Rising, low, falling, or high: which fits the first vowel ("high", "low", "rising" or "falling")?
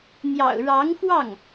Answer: low